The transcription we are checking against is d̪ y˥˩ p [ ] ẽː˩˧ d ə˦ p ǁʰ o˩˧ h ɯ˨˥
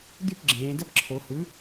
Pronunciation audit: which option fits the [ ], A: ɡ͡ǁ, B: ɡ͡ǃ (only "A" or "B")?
A